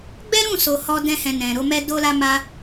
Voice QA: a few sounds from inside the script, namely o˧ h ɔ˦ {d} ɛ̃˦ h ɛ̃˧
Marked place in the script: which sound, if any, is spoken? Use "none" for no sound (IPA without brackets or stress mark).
d